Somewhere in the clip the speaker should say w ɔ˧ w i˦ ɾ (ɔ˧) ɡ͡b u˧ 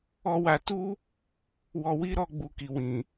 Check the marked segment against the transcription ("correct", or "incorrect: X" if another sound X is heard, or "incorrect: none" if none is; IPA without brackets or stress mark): correct